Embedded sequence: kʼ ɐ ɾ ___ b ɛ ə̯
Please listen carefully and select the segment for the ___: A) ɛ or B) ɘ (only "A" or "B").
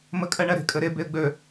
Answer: A